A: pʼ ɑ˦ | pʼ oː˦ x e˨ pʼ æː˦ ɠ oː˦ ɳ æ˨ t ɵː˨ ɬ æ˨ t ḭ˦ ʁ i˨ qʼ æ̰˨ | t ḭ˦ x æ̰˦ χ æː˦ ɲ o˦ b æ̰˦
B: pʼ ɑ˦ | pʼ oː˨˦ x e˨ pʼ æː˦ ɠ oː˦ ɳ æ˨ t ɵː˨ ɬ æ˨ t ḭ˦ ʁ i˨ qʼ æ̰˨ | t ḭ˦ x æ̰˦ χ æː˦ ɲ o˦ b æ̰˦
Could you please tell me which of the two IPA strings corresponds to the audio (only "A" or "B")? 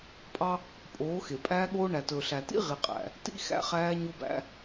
B